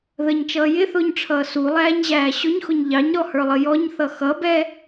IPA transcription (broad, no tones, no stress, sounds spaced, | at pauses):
ð ə ɲ t͡ʃ ʌː j ɪ θ ʊː ɲ ʈ͡ʂʰ ʌː s u lˠ æː ɲ ʑ æː ɕ ʊ ɲ x ʊ ɲ ʎ ɑ ɲ ɾ ɔ h ə˞ lˠ ə j ɔ ɲ θ ʌ x ʌ b ɛ